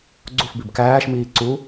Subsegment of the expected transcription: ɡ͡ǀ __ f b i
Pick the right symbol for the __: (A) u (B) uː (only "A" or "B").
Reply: A